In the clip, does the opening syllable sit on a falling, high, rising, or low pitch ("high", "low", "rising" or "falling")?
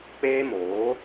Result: high